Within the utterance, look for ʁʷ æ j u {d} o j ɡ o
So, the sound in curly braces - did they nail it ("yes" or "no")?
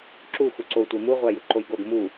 no